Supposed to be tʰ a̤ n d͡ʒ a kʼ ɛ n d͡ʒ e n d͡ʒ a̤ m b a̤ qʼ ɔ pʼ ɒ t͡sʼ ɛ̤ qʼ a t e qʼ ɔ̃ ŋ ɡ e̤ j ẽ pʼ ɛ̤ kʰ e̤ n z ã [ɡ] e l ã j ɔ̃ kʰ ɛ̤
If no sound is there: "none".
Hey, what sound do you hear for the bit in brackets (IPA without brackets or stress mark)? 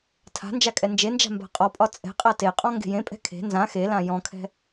x